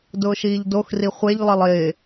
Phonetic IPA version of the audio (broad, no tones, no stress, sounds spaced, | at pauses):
d ʊː ʃ iː ʎ d o x r i χʷ e ʎ lˠ ɪ lˠ ɪː